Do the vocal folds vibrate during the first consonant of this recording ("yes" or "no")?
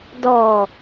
yes